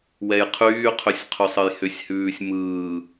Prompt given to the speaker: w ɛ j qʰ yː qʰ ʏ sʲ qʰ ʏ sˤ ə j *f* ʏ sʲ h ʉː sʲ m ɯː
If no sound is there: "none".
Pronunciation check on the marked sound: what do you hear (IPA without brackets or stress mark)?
h